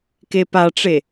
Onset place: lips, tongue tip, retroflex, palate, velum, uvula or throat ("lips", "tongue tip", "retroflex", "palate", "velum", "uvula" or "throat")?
velum